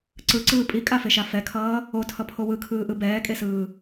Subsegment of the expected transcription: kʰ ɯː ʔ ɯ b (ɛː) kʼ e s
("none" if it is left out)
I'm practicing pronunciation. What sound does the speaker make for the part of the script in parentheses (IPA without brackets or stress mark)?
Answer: ɛː